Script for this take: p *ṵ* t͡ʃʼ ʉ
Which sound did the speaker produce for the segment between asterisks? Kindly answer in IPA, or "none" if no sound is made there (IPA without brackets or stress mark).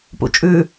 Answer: ṵ